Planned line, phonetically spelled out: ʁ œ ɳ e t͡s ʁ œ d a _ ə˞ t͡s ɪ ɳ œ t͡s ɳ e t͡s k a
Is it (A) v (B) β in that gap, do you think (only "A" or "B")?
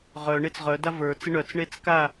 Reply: A